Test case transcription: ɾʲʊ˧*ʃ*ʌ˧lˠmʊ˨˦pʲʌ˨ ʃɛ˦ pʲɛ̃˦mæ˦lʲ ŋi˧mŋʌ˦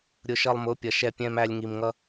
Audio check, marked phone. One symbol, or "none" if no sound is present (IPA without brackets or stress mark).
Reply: ʃ